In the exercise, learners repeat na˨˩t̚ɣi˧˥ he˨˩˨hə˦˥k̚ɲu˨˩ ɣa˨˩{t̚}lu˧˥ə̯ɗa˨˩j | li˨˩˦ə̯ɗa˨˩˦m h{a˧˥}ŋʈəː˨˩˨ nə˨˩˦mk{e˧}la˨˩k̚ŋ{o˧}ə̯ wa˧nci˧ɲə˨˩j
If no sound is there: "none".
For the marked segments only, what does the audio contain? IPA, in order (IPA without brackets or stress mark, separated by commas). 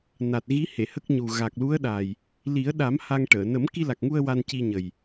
k̚, a˧, i˧, u˧